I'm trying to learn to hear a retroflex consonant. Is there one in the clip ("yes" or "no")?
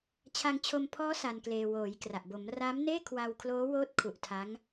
no